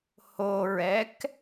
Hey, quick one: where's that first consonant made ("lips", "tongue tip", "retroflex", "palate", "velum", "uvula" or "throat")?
throat